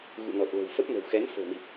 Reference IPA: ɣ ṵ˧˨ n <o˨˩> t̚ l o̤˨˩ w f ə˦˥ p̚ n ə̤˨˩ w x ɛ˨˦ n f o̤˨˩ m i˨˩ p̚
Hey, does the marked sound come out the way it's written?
no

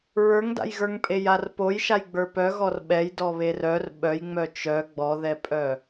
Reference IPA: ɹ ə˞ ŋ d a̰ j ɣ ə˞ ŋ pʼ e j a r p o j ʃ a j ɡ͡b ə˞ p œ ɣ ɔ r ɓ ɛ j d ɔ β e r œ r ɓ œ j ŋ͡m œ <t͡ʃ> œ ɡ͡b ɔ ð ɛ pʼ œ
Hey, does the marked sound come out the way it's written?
yes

